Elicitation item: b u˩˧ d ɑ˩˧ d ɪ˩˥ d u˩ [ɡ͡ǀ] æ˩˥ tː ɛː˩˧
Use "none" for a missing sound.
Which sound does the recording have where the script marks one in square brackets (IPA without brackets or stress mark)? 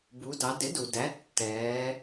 d